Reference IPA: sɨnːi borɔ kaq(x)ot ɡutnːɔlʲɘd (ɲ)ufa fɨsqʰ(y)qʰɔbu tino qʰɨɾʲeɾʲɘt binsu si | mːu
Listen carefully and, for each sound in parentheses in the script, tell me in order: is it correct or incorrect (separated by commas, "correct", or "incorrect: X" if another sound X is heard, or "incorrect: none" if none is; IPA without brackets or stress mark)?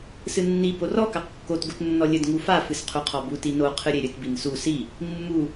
incorrect: kː, incorrect: ŋ, incorrect: u